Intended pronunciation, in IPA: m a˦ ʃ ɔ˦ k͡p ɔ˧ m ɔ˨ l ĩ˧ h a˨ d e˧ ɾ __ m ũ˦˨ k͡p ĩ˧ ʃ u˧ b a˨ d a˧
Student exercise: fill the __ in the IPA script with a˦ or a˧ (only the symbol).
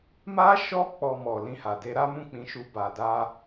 a˦